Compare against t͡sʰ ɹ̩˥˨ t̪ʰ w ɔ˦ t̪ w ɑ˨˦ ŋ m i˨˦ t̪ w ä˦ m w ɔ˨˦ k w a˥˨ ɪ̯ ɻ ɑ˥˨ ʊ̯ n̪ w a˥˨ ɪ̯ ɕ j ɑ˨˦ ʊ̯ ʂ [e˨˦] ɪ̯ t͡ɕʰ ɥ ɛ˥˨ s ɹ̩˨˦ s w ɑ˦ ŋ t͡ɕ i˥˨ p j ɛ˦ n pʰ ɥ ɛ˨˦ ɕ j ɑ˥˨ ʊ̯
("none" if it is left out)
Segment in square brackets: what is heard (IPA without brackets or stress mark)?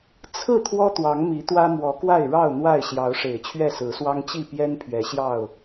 e˨˩